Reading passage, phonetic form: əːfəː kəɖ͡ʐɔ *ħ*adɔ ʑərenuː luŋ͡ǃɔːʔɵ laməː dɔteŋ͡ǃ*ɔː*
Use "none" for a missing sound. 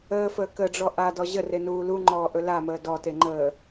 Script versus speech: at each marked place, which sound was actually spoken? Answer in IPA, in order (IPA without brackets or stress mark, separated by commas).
ʔ, əː